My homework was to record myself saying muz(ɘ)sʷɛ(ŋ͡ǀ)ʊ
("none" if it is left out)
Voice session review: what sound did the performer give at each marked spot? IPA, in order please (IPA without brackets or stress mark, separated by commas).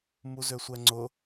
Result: ø, ŋ͡ǀ